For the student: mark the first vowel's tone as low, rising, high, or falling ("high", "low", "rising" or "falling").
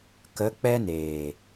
rising